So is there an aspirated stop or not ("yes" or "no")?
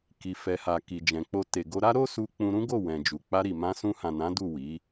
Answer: no